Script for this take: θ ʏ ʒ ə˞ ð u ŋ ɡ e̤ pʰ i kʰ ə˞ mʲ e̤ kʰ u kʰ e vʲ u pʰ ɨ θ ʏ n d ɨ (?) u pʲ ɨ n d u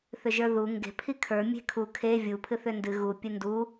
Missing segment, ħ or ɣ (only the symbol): ɣ